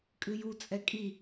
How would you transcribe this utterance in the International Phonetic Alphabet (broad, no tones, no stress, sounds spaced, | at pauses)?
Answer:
kʼ ɨ j u t͡sʼ ɛ kʼ i